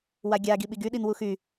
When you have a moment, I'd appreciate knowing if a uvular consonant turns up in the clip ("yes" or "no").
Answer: no